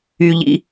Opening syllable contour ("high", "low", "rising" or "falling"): high